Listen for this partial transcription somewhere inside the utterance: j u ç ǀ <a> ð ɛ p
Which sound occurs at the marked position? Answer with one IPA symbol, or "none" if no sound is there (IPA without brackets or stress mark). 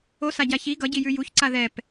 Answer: a